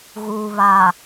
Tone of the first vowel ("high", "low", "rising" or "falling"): low